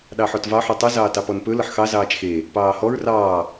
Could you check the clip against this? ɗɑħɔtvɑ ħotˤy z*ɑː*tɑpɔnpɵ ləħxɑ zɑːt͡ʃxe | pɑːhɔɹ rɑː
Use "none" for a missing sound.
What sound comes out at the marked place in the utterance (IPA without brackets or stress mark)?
ɑː